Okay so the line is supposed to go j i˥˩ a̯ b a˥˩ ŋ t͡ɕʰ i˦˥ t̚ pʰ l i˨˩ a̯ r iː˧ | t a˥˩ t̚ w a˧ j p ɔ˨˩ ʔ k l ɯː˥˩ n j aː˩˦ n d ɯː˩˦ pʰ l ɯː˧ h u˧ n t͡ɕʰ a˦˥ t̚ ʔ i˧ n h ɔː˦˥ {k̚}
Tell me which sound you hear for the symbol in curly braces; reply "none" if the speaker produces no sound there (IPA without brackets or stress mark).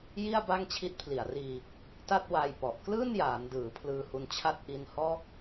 k̚